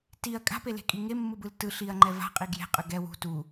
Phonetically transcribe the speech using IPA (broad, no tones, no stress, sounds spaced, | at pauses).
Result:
t i ɐ̯ kʼ a̤ p e l e̤ kʼ i ŋ e mː ɯ b ɯ l t ɯ ɬ i ɐ̯ ŋ͡ǃ ɛ v a̤ qʼ i ɡ j e̤ qʼ ɯ ɡ ɛ w ṳ t u